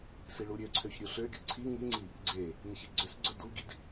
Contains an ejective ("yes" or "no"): no